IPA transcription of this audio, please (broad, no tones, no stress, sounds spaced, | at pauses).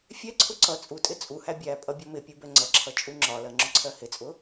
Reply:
fʲ ɛ ǀʰ ʊ ǀ ʌ t͡sʼ u tʼ ɪ t͡sʼ u h æ bʲ æ pʼ ʌ bʲ ɔ m ɪ pʲ u b ɛ ŋ͡ǀ ʌ ǁʰ ʌ t͡ʃʼ u ŋ͡ǁ ɒ l ɜ ŋ͡ǁ ʊ ǀʰ ɜ h ɪ t͡sʼ ʊ